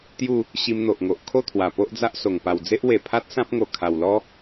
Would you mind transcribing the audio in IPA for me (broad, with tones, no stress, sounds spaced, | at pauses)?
t̪ j u˥˧ | ɕ i˧ m n̪ o˨ ʔ ŋ o˨ ʔ kʰ o˥˧ t̪ʰ w a˨˩ p o˦ ʔ d͡z a˦ ʔ s o˨˩ ŋ p a˨˩ w d͡z e˦ ʔ w e˨˩ pʰ a˦ t̚ s ã˦ p̚ ŋ o˨˩ kʰ a˨˩ w l ɔ˦